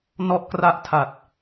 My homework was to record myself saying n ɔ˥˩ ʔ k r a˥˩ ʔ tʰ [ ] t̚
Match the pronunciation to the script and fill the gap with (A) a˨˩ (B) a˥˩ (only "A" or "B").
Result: A